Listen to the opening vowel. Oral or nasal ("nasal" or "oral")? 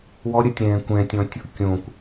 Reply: oral